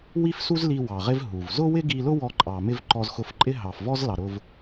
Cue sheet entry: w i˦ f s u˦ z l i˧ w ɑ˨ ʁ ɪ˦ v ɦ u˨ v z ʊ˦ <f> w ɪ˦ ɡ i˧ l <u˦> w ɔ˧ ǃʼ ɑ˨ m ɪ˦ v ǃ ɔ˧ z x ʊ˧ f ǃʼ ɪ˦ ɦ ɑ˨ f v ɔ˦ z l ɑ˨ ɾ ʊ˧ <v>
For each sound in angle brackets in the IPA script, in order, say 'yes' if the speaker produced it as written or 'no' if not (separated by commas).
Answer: no, no, yes